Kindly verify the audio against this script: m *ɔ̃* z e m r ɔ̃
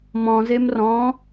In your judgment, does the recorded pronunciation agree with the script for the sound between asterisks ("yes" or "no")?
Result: yes